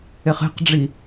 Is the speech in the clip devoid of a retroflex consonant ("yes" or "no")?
no